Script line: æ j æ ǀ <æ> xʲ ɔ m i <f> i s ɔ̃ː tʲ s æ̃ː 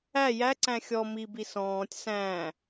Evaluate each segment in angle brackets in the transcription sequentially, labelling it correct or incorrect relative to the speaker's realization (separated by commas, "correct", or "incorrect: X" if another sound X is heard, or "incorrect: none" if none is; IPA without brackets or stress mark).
incorrect: æ̃, incorrect: b